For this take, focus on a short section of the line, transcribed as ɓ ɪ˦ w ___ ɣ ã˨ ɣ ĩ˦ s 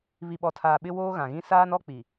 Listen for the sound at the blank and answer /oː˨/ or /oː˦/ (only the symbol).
oː˦